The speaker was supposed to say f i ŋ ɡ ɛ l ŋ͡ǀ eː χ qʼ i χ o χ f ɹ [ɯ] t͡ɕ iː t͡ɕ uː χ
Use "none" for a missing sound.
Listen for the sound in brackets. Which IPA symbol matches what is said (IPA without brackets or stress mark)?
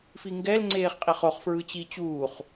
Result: ɯ